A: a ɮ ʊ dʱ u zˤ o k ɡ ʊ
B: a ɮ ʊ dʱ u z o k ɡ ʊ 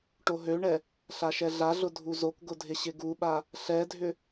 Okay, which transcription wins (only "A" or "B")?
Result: B